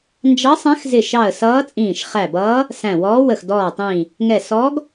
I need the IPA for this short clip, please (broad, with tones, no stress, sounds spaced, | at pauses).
n d͡ʒ ɑ˧˥ sˤ æ̃˧˥ x z ɪ˧˩ ʃ ɑ˧˩ ə̯ s ʌː˧˥ t͡sʼ ĩː˧˩ ʃ χ æ˧˩ b ʌː˧˥ | s æ̃˧˩ w ɔː˧˥ w ə˧˩ x d ɔː˧˩ tˤ ĩː˧˩ | ŋ ɛ˧˩ s ɔː˧˥ ɡ